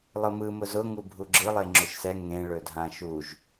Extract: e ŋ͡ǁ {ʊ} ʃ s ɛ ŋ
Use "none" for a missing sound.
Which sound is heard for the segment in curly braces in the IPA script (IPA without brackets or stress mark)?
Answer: ɵ